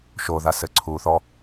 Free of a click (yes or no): no